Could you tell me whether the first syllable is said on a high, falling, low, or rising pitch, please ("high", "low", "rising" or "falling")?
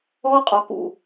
high